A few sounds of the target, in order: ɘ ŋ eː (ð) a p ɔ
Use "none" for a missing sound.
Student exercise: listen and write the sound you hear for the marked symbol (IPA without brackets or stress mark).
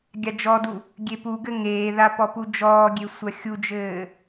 ð